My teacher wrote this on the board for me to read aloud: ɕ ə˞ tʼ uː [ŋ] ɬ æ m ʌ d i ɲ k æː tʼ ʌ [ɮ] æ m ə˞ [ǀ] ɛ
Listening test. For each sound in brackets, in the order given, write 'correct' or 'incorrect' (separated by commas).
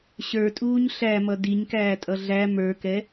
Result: incorrect, correct, incorrect